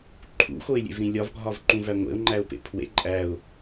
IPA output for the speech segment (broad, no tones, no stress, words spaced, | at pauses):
ǃʰṵxoɪ̯lʲḛvɾĩ lʲɒvɡʱɒvǃũvæ ŋʷḛʊ̯ŋ͡ǃæʊ̯pḛ pʰwḛ ǃʼæʊ̯